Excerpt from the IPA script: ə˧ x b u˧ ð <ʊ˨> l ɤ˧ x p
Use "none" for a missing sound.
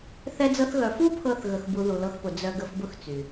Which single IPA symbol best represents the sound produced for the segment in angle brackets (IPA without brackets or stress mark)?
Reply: u˨